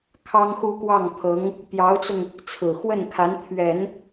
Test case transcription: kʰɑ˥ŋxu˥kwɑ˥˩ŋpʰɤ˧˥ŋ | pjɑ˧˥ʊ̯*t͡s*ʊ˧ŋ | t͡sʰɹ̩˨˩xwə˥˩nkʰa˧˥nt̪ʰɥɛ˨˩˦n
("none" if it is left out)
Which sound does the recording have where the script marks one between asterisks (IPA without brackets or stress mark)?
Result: t͡s